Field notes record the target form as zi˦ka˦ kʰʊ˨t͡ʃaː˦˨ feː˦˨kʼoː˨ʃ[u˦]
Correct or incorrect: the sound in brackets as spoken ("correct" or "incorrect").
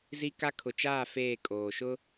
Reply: incorrect